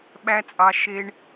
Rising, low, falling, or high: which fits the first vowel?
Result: high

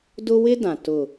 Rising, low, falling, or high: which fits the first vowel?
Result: high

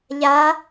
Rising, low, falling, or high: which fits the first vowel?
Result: rising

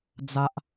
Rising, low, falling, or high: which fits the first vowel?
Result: high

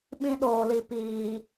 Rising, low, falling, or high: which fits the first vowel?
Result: high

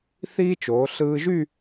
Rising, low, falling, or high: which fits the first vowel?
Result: high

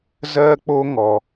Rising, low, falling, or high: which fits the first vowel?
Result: high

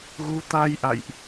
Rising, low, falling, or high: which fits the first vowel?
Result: rising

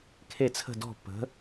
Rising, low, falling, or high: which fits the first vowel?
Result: falling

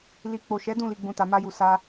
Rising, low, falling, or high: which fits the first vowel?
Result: low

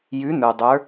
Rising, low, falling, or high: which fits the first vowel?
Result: rising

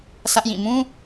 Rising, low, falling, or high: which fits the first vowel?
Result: high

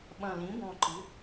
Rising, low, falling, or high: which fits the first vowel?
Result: low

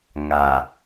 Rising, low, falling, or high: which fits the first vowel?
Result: low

